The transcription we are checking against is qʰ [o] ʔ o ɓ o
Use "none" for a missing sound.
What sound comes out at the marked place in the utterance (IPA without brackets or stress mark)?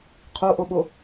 o